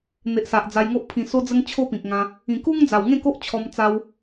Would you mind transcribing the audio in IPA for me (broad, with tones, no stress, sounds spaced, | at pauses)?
n̪ e˨ ʔ s a˨ ʔ d͡z a˧ j ŋ o˦ ʔ pʰ ĩ˨˩ s o˧ d͡z ə˧ ŋ t͡ɕʰ o˦ p ĩ˨ k̚ ŋ ã˧ | ĩ˨˩ k u˦ ŋ d͡z a˨˩ w ŋ ẽ˥˧ k o˦ ʔ t͡ɕʰ ɔ˧ m t͡s a˧ w